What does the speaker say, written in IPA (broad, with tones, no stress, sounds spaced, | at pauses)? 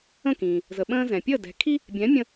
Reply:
ə̃˥˩ k ĩ˩ | z ə˩ ɓ ə̃ː˧ z ɛ̃˩ pʲ əː˥˩ d ɛ̤˩˥ kʰ i˥ | bʲ ɛ̃˩˥ mʲ ə̃˧